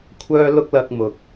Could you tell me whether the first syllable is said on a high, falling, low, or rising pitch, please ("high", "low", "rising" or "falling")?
high